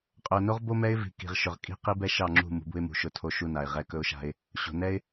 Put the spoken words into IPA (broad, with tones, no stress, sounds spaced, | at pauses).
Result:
qʼ ɵ˨ ʊ̯ n o˦ ʁ b o˦ m ɛ˦ ɪ̯ v i̤˨ k i̤˨ ʁ ʃ ɵ˨ ʁ kʼ i̤˦˨ q i˦ b ɛ˦ ʃ ɑ˦˨ ŋ͡ǁ ṳ˦˨ m ṳ˨˦ b ṳ˦ ɪ̯ m ṳ˨ ʃ ʊ˦˨ tʰ o˦ ʃ u˦ n a˨ ɪ̯ ʁ ɛ˦ k ɵ˦ ʊ̯ ʃ a̤˦ ɪ̯ | ɕ o̤˨ n ɛ˦ ɪ̯